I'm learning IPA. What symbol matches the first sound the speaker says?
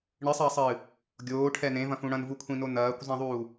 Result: ɳ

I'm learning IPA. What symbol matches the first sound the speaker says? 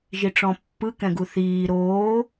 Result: ʒ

